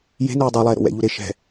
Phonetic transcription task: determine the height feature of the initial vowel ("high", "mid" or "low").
mid